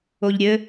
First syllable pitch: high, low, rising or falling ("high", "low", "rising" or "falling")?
low